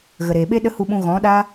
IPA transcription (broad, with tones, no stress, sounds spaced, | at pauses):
ɣ ə˨ ɾ eː˨ ɓ e˦ ɗ ə˦ h u˧ ɓ ũ˧ ɣ ɔ̃˨˦ ɗ aː˦